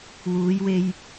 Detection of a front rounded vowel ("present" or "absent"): absent